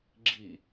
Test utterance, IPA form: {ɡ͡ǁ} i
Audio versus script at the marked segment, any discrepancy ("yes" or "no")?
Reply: no